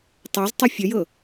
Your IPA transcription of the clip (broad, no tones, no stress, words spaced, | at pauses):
tˤæztˤɛ fʲəjɤ